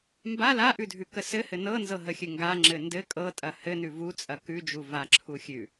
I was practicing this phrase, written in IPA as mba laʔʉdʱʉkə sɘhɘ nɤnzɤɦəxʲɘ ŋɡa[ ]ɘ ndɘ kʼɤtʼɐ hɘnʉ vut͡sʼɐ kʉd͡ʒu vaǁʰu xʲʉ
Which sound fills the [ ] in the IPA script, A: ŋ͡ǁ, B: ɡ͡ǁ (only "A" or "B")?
A